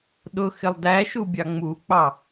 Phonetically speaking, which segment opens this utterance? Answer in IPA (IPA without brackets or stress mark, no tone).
ɗ